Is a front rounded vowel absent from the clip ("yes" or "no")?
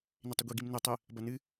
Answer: yes